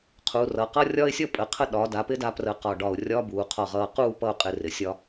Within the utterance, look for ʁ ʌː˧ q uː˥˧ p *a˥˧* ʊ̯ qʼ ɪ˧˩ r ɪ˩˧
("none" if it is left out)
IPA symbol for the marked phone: ʌ˥˧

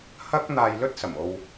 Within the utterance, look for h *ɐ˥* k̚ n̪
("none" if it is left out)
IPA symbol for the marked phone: ɐ˥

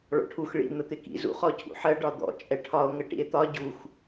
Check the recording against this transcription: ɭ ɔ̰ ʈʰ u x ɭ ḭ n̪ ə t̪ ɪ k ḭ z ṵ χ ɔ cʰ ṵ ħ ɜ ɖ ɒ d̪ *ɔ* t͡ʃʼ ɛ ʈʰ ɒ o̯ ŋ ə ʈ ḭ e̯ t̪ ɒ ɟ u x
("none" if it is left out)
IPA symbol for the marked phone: ɔ̰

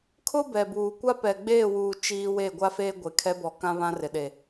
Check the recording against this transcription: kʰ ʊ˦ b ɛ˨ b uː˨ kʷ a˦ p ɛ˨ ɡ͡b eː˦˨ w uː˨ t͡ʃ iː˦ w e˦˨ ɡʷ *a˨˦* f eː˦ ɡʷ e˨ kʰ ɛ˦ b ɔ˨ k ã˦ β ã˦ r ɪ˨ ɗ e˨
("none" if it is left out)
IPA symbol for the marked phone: a˦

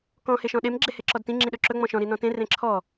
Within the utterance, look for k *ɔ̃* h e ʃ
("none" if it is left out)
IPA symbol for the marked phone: ɔ̃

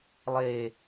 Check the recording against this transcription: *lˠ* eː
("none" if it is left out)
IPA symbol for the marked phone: lˠ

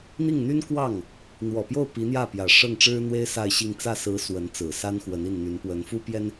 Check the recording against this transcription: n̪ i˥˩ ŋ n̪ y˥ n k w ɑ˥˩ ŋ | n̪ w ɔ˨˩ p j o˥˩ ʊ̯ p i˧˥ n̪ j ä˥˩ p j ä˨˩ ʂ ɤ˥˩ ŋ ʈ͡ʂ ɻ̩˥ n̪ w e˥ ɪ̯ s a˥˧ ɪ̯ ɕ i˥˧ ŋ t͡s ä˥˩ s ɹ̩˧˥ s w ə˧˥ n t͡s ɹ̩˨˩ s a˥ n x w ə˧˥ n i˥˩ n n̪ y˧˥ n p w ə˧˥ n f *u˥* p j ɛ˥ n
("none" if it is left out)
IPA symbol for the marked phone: u˥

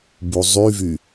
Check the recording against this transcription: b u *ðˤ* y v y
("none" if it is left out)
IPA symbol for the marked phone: zˤ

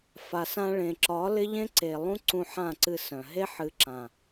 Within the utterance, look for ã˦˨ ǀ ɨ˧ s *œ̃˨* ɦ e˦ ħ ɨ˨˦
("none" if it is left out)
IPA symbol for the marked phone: œ̃˨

